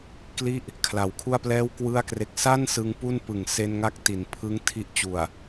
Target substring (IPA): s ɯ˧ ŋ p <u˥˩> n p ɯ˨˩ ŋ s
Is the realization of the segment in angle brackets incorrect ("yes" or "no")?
no